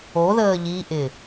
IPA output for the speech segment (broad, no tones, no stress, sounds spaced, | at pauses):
o ð əː ʎ i ʔ ɪ